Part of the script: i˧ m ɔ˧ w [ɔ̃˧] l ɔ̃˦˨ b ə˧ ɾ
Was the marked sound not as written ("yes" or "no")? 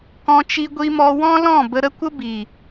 yes